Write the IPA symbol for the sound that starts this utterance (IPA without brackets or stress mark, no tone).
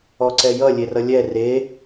ɔ